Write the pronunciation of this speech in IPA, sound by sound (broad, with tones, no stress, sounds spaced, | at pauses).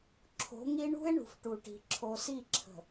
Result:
ǁʰ o̤˨˦ ŋ i˦ ɳ ṳ˦ e̯ ɳ ṳ˨ f ʈ u˨ ʈ i̤˨ ǁʰ o˨ s i˦˨ ǁʰ ə̤˨